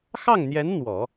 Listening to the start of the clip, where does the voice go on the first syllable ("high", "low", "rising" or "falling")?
falling